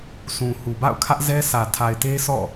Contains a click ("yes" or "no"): no